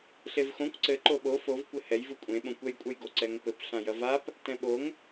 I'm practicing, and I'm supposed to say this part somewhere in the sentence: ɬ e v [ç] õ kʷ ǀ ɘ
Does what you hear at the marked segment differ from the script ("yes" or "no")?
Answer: yes